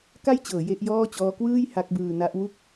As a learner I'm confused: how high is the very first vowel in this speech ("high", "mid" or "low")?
low